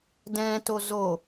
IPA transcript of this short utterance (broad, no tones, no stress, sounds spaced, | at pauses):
d ɛ̃ t o z o